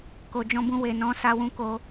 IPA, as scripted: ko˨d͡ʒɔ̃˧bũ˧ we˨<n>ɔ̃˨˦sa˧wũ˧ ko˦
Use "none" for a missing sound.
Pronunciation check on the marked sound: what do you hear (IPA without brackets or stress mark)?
n